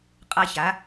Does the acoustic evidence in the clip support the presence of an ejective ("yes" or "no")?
yes